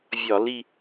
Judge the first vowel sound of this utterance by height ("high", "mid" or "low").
low